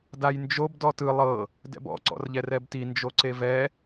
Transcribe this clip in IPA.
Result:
dajnd͡ʒob dɔtɯ lˠɤ | dɛ̰bɔ̰ ǀɔ̰rʎɛrɛbti nd͡ʒoǀevɛ

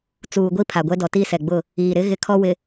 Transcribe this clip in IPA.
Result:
t͡suː˨ɡʷi˦ pʰa˨ɡʷɛ˦dɔ˨ tiː˦sɛ˨ɡ͡bʊ˦˨ | iː˨ɾɪ˦ ɣɪ˦kʰɔ˦ wɪ˨

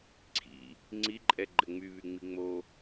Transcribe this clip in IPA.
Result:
ǀʰḭ | ŋ͡ǀiǃʼɛɡ͡ǃɘ ŋ͡myβyŋ͡mi ŋ͡mo

